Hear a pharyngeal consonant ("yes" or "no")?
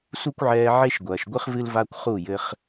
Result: yes